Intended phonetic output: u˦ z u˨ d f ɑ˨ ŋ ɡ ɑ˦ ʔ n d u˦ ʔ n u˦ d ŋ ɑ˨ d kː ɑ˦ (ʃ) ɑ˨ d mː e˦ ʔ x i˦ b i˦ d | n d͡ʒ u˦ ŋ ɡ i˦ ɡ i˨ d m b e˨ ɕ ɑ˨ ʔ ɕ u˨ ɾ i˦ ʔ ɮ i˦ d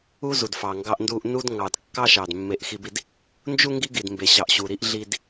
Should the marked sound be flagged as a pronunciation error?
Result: no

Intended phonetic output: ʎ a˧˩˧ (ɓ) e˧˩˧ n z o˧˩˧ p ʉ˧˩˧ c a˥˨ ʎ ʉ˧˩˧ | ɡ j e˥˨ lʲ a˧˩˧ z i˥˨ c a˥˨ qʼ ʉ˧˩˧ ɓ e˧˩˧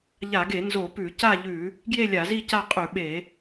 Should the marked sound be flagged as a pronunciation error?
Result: yes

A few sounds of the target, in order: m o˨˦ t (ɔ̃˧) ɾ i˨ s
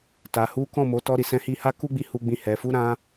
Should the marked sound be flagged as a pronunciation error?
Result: yes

